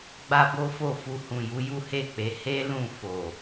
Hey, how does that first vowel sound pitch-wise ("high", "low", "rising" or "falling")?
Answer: high